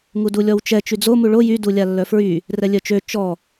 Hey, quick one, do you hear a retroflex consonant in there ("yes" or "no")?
yes